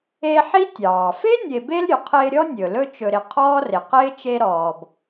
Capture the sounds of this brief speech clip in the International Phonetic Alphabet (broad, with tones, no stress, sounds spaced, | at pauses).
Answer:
e˦ ħ i˥ tʲ ɑː˩ f e˥ nʲ e˨ b e˦ l ɾʲ ɵ˩ qʰ ɪː˦ ɾʲ ɔ˥ nʲ ɵ˩ l ɵ˦ t͡ʃ ɵ˨ ɾ ɪ˨ qʰ ɔː˥ r ɪ˩ q ɪː˥ t͡ʃ e˦ ɾ ɔː˩ b